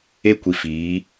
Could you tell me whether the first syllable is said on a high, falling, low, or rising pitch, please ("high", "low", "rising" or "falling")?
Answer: high